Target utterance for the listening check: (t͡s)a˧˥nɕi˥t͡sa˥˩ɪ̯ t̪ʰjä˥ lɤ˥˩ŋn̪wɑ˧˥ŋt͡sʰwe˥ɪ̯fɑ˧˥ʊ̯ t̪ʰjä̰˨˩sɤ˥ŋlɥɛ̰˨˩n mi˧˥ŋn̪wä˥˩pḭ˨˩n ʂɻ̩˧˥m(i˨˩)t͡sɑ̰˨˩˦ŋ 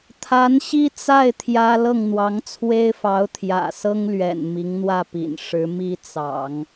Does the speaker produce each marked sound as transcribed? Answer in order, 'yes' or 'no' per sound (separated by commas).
no, no